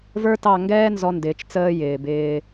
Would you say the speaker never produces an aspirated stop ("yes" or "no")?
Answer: yes